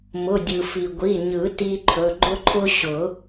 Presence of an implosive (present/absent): absent